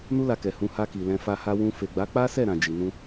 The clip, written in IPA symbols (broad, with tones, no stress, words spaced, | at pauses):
nu˦la˧kɛ˨ hũ˧ha˧ ki˨lɛ̃˧ fa˧ha˧wũ˧ fe˨ɡ͡ba˨˦ k͡pa˦sɛ˦˨ɾã˨ d͡ʒi˨nũ˧